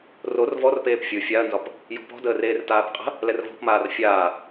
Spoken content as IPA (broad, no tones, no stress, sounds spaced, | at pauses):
r o r v ɔ r p eː p fʲ ɯ fʲ a ɐ̯ n z ɒ p | j ɔ̤ p ɔ̤ d əː r eː r t aː p qʼ ə̤ | l ɛ r v ɔ̤ p m aː r fʲ aː